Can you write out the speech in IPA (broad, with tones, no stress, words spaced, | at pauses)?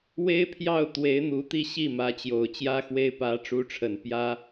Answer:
we˥ɪ̯pʰjɑ˥˩ʊ̯t̪we˧˥ɪ̯ n̪u˧˥t̪i˥˧ɕi˥˩ mä˧˥t͡ɕjo˨˩ʊ̯t͡ɕjä˥xwe˥ɪ̯ pä˧˥ʈ͡ʂu˧˥ʈ͡ʂʰə˨˩n pjä˥